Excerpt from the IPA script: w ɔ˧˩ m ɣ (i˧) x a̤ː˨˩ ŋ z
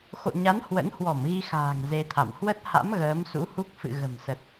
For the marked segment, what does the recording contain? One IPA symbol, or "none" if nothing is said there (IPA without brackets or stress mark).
i˧